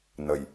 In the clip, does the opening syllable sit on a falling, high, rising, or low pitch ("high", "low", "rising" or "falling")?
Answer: low